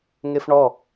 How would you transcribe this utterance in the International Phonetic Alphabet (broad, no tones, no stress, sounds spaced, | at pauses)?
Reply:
ŋ e f ɳ ɔ